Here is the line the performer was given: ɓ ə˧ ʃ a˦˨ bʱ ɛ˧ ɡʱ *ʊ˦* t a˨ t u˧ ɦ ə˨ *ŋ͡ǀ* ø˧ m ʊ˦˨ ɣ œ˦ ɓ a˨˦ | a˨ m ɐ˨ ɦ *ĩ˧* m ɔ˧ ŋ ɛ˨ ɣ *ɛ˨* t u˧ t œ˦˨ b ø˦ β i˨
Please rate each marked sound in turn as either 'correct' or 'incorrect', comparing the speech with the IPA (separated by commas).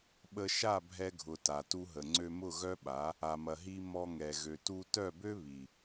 incorrect, correct, incorrect, incorrect